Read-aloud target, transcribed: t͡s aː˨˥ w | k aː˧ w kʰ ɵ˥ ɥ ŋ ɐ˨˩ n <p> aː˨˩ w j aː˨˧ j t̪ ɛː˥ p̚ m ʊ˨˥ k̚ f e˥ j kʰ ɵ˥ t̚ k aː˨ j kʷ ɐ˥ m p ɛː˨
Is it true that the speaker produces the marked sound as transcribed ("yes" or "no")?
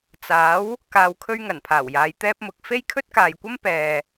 no